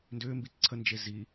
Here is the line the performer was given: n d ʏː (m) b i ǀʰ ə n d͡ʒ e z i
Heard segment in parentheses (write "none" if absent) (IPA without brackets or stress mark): m